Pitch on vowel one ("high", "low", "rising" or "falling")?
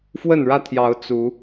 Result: falling